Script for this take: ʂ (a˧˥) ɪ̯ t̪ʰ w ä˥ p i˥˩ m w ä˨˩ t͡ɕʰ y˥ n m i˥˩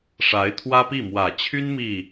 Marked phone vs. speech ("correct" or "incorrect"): correct